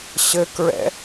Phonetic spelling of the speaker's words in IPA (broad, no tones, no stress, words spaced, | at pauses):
ɕɘkɹɛ̰